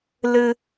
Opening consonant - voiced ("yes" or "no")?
yes